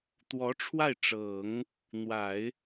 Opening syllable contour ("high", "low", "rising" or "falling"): rising